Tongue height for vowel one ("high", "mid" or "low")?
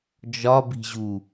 low